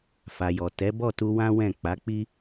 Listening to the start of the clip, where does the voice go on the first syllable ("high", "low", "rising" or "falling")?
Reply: low